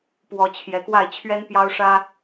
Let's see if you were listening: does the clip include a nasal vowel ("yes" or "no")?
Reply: no